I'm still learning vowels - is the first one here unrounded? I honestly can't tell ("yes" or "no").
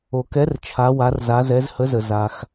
no